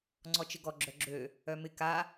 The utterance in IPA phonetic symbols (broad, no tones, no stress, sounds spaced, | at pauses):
ŋ͡ǀ ɔ t͡ʃ ɪ ɡ ɔ ɡ͡ǁ œ ɡ͡ǁ ø | œ m ɪ k a